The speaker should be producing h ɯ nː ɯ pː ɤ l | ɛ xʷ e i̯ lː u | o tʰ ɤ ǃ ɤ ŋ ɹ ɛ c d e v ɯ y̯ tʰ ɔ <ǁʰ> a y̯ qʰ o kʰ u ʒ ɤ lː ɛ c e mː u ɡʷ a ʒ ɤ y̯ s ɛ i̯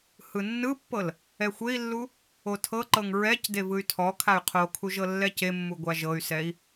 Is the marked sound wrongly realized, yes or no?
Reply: yes